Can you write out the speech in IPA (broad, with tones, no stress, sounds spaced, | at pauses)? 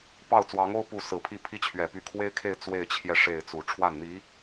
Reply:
p ɑ˥˩ ʊ̯ t͡s w ɑ˧˥ ŋ o˥ ʊ̯ p u˥˩ s ɹ̩˨˩ pʰ i˥˩ pʰ i˥ t͡ɕʰ ɥ ɛ˨˩ p y˧˥ kʰ w e˥ ɪ̯ kʰ e˥˧ ɪ̯ t͡s w e˥˧ ɪ̯ t͡ɕʰ j ɛ˥˧ ʂ e˥˩ ɪ̯ t͡s u˨˩ ʈ͡ʂʰ w a˥˩ n n̪ i˧˥